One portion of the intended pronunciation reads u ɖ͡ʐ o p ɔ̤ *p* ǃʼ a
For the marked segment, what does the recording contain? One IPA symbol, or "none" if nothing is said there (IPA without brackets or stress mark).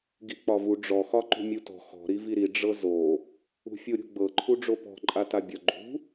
none